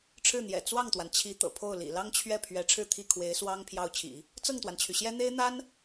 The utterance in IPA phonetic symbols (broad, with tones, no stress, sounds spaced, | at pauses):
ʈ͡ʂʰ ɻ̩˥˩ n̪ j ɛ̰˨˩ t͡s w ɑ˥˩ ŋ t̪ w a˩ n t͡ɕʰ i˧˥ t̪ ɤ̰˨˩ pʰ o˥˩ ʊ̯ l ḭ˨˩ l ɑ˥ ŋ t͡ɕʰ ɥ ɛ˥˩ pʰ ɥ ɛ˧˥ ʈ͡ʂʰ ɻ̩˥˧ t̪ʰ i˥˩ kʰ w e˧˥ ɪ̯ s w ɑ˥ ŋ pʰ j ɑ˥˩ ʊ̯ t͡ɕʰ ḭ˨˩˦ | t͡s ɤ˥˩ ŋ t̪ w a˩ n t͡ɕʰ y˩ ɕ j ɛ˥ n̪ e˥ ɪ̯ n̪ a˥ n